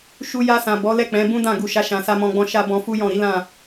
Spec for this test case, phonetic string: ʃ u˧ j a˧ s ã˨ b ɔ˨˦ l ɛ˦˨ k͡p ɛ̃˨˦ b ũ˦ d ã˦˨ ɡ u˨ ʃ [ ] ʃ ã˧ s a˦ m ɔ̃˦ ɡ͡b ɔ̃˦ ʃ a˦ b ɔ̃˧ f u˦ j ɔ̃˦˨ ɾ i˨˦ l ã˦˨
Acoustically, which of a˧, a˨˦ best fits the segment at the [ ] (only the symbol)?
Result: a˨˦